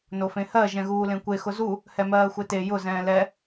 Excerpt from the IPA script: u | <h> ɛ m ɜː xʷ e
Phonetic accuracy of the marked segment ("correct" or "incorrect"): correct